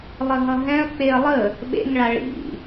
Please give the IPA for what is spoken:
lˠ ə ɦ ʌ ɦ ɛ̃ ɐ̯ k͡p e ɐ̯ lˠ ə | ɓ ḛ ŋ ɭ a ɭ ḭ

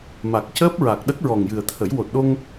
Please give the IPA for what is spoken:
m a˨˩ k̚ c əː˦˥ p̚ ɹ a˨˩ k̚ ɗ ə˦˥ k̚ ɹ ɔ˨˩ ŋ j ɨ˨˩ ə̯ t̪ʰ ə˨˩˦ j w o˨˩ t̚ ɗ o˧ ŋ

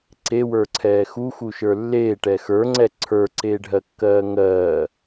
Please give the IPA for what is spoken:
ǀ e w ə˞ ǀʰ ɛː x u x u ʃ ə˞ lː eː ʈ ɛ x ə˞ ŋ͡ǀ ɛ ǀʰ ə˞ ǀ eː ɖʱ ɜ kː ɜː ŋ ɜː

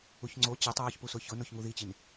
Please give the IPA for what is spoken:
u ç ŋ͡ǀ o t͡ɕ e tˤ ɹ ɔ ç p u s ʊ ç ʊ n o ç ŋ u ð i t͡ɕ i n

